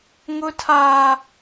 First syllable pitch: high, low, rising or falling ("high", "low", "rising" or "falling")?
high